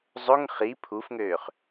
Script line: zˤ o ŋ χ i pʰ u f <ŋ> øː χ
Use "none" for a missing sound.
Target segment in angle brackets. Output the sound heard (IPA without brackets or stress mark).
ŋ